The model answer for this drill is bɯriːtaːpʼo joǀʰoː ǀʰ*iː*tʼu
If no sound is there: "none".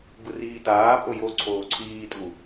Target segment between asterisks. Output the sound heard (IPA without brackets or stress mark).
iː